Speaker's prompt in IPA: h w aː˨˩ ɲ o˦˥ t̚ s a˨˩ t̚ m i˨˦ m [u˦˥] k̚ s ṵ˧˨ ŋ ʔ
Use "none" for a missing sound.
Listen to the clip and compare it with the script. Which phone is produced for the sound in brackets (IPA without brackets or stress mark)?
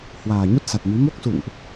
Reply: o˦˥